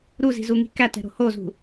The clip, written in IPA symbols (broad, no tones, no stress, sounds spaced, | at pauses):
ɾ u z i̤ z u ŋ i̤ k æ t ɛ̤ ɾ o̤ h o z ṳ